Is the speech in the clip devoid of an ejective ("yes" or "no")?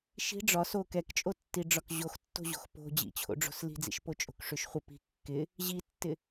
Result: no